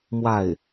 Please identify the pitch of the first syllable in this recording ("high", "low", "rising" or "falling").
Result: falling